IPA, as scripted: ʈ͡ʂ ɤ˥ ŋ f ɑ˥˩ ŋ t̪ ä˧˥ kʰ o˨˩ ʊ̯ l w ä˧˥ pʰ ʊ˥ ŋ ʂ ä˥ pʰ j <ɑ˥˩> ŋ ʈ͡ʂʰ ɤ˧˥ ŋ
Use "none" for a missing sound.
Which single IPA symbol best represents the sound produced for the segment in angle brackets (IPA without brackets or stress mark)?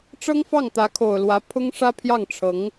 ɑ˥˩